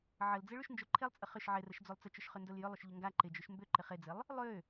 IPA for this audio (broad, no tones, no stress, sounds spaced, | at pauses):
ʕ ə l d͡z e ɭ y ʃ n d͡ʒ o ǃʰ e lˠ t͡sʼ ə χ ʏ ʃ ʕ ɪ r ə ʃ d͡z o lˠ t͡s ə t͡ʃ ʊ ʃ χ ø n d o l j ʏ lˠ ʏ ʃ ʎ ʊ ŋ ɡ a ǃ ɪ d͡ʒ ʏ ʃ m b ʏ ǃ ɪ χ e d͡z ɪ lˠ | lˠ ø